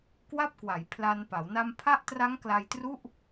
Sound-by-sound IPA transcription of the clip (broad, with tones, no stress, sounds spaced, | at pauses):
k w a˥˩ p̚ k w a˩˦ j pʰ l a˧ n p a˩˦ w n a˧ m pʰ a˦˥ ʔ t r a˦˥ ŋ k l a˧ j t r u˥˩ ʔ